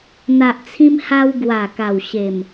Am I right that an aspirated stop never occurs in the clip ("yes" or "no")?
no